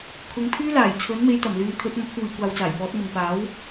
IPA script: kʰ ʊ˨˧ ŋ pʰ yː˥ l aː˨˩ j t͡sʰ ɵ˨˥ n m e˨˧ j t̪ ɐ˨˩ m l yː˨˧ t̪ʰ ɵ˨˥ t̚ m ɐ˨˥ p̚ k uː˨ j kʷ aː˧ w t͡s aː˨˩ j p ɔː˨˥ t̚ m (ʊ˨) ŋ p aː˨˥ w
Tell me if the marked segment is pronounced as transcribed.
yes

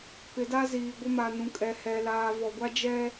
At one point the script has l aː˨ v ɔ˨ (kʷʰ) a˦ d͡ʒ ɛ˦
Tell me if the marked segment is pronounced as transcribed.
no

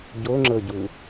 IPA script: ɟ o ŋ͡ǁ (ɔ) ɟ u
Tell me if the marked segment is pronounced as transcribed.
no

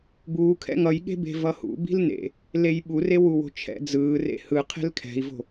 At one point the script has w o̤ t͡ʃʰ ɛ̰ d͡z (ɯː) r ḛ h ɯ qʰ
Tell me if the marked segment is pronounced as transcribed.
yes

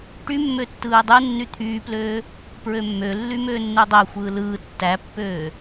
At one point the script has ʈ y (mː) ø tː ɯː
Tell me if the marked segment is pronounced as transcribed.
yes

